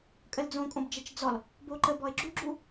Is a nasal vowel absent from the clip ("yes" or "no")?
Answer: no